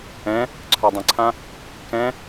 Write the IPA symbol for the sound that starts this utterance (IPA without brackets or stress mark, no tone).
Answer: ɛ̃